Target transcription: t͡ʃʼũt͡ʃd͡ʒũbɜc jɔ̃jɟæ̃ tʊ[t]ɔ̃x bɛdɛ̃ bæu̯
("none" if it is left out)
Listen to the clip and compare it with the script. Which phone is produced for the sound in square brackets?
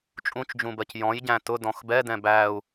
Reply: d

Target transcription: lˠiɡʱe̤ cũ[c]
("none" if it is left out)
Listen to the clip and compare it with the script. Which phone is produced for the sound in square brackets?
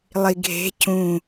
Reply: none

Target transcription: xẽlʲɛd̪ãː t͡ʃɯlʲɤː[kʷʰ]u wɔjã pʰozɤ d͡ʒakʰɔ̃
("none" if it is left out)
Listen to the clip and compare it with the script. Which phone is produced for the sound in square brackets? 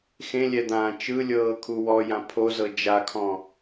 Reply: kʰ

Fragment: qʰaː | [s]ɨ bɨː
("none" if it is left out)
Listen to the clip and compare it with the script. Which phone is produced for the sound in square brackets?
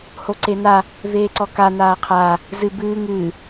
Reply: z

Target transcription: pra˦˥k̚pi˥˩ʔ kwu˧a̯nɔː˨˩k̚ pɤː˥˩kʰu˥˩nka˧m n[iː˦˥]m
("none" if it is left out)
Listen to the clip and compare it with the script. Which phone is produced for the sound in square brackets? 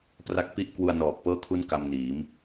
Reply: iː˩˦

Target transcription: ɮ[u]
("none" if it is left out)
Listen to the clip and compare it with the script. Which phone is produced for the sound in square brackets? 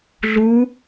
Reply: u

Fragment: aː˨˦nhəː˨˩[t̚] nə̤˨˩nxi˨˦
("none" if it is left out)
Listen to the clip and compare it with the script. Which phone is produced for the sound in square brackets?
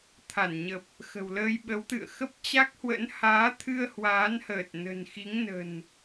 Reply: t̚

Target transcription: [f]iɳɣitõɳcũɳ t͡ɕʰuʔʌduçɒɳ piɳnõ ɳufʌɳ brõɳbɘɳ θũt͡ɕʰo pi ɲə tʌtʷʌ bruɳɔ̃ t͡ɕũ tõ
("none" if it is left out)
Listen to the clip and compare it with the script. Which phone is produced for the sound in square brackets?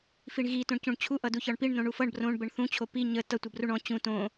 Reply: f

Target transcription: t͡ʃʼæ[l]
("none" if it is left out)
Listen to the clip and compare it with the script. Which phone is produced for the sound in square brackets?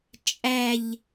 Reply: ʎ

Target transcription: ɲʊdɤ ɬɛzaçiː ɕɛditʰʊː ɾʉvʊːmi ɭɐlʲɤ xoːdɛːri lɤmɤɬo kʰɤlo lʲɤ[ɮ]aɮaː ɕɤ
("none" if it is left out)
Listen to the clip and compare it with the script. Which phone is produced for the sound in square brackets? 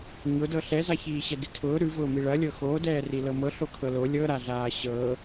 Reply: ɾ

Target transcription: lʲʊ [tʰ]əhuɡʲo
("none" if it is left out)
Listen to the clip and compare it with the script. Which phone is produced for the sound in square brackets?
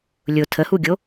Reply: tʰ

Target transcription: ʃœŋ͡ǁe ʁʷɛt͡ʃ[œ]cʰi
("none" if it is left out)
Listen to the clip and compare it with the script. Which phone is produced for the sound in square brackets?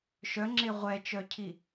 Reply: œ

